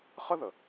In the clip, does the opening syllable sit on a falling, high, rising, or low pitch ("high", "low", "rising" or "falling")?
high